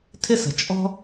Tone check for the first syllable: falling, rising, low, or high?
high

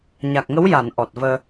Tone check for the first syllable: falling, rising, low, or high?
low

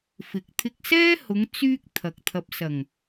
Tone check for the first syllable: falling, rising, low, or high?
low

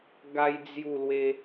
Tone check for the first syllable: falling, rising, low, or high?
high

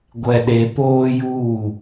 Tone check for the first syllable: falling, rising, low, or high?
low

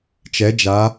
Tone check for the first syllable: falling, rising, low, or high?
rising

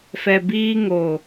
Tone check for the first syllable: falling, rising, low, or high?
low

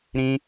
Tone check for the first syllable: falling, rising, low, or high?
high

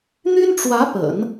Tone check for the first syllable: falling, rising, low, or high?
high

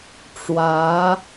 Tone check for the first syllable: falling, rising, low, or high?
rising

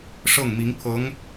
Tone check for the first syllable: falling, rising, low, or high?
falling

